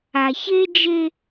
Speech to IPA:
a˨ ç e˦ d͡ʒ e˦

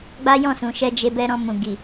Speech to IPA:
ɡ͡b a˦ j ɔ̃˦˨ s ũ˨ ʃ ɛ˧ d͡ʒ e˧ b ɛ˦ ɾ ɔ̃˧ m ũ˨ ɡ i˨

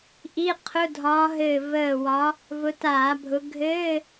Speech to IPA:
ʔ i˧˥˧ qʰ ʊ˧˥˧ dʱ ɒː˨˦ ɦ ɘː˧˩ v əː˧˩ w ɒ˨˦ | v ʊ˨˦ t aː˧˩˧ bʱ ʊ˨˦ ɡʱ ɘː˧˥˧

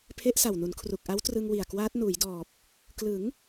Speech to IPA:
pʰ e˦˥ ʔ s a˨˩ w n u˩˦ n kʰ r u˨˩ k̚ ʔ a˦˥ w t r ɯ˧ ŋ w i˨˩ a̯ k w aː˦˥ t̚ n uː˩˦ j d ɔː˨˩ p̚ | k l ɯ˩˦ ŋ

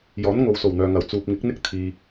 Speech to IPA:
j ɔː˨˥ n ŋ o˨ w s o˨˩ w n̪ œː˨ ŋ ɐ˨˩ w t͡s uː˨ p̚ ŋ ɪ˨˥ k̚ n̪ ɪ˥ k̚ t̪ʰ iː˨

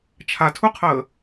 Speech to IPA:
t͡ʃʰ a tʰ u qʰ əː

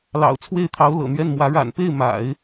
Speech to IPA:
l ɑ̰˨˩ ʊ̯ t͡sʰ w e˥˩ ɪ̯ t̪ʰ ɑ˧˥ ʊ̯ l ɤ̰˨˩ n̪ ɥ ɛ˥˩ n m w ä˧˥ ɻ a̰˨˩ n p e˥˩ ɪ̯ m a̰˨˩˦ ɪ̯

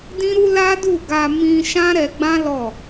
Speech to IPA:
d ĩ˦ ɾ u˦ l a˦ d u˦˨ ɡ a˧ m ĩ˧ ʃ ã˦ ɾ ɛ˧ ɡ͡b ã˦ l ɔ˦˨

